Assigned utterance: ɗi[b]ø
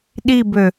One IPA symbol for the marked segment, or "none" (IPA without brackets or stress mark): b